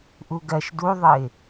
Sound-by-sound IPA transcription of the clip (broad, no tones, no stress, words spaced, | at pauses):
ʔuɡɜʃ duðˤɨɪ̯